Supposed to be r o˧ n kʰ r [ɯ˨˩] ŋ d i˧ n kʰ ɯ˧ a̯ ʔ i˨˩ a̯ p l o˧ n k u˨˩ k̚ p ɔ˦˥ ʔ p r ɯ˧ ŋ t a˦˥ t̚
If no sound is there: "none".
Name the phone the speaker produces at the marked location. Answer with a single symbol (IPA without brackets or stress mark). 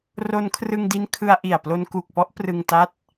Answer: ɯ˧